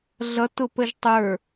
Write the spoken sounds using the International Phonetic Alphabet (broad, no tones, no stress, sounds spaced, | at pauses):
ɮ ʌ t ʊ p ə ʒ tˤ ə˞